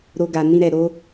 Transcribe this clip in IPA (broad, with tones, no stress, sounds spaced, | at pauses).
ɾ o˦ ɡ a˧ n ĩ˦ ɾ ɛ˧ ɾ o˦